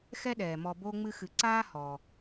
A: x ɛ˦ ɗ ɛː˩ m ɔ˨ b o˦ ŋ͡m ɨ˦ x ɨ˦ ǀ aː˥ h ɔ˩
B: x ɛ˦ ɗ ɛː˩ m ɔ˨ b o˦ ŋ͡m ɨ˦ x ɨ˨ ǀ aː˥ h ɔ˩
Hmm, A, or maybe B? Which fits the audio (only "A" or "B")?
B